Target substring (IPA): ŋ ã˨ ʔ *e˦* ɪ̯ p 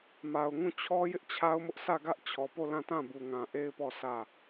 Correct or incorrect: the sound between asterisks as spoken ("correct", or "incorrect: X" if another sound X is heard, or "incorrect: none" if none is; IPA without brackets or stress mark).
correct